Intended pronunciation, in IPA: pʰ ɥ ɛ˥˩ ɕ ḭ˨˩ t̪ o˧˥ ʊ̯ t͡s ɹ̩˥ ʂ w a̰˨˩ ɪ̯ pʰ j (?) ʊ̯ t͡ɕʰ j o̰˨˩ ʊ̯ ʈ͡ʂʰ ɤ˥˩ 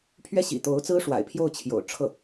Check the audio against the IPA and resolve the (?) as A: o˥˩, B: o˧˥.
A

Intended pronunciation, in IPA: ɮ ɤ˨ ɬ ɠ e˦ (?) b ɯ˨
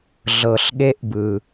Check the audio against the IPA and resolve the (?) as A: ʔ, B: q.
A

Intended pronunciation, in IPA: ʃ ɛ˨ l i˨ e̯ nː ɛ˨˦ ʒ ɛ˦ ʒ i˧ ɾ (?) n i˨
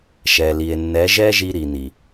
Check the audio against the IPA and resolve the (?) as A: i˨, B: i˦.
A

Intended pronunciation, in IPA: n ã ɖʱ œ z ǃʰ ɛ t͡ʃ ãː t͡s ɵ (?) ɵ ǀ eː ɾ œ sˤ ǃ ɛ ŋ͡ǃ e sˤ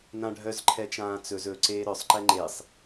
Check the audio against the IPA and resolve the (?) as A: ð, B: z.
B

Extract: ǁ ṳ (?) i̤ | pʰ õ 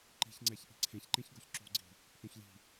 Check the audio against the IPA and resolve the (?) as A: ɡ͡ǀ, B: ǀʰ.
A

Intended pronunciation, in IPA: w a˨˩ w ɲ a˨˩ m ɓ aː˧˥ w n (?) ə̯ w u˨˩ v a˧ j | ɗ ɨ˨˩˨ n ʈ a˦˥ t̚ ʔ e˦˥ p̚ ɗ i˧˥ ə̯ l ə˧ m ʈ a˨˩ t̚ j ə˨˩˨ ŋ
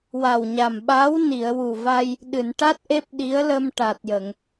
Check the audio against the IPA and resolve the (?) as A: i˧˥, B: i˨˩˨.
B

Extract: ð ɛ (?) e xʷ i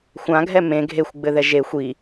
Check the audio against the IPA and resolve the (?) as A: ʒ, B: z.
A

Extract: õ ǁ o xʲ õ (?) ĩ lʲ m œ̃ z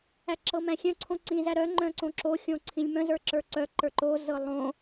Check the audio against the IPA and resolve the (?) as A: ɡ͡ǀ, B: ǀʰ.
B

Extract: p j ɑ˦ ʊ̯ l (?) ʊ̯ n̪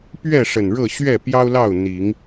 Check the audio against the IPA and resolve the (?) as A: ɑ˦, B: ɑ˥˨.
B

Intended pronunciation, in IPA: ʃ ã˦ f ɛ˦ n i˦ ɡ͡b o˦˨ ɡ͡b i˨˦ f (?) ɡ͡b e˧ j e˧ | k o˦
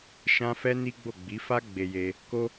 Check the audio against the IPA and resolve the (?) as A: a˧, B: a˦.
B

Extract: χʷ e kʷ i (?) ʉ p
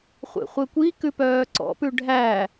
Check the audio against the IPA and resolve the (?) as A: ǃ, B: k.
B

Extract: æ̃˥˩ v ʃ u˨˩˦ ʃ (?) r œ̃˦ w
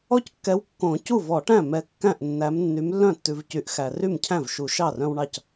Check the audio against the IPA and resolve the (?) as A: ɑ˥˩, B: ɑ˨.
A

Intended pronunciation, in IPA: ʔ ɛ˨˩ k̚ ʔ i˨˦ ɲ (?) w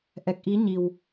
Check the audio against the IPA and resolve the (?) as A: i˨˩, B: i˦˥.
A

